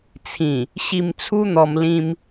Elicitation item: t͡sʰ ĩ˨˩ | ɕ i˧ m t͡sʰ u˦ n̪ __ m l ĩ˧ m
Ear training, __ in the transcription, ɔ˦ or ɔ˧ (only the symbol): ɔ˧